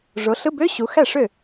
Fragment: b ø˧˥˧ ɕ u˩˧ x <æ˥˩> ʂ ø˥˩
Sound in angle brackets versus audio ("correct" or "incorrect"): correct